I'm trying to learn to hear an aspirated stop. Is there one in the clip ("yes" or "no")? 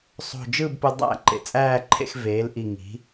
yes